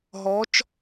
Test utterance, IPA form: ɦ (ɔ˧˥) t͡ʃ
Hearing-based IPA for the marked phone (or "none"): ɔ˧˥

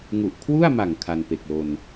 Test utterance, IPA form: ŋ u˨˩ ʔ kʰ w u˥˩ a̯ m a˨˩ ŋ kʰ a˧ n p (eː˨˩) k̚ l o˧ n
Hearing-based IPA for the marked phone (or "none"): e˨˩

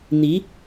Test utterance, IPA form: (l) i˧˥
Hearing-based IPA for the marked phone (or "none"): n̪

